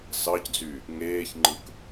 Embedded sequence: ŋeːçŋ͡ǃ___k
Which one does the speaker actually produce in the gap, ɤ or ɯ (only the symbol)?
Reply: ɯ